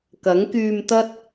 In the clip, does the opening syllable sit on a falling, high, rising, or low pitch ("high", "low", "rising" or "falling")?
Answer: rising